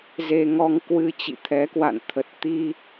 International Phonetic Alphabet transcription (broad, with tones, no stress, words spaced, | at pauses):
ze˧ŋɔ˧ŋ kwɨ˧ t͡ɕḭ˧˨t̪ʰɛ˨˦kwa̰˧˨nt̪ʰə˨˩t̚ t̪i˧